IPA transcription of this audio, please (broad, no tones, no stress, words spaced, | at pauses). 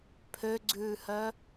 pʰøɡ͡ǀʉːhœ